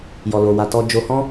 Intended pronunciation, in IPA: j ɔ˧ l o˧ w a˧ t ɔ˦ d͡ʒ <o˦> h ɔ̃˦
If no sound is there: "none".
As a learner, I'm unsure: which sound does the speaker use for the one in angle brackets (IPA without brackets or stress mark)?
o˦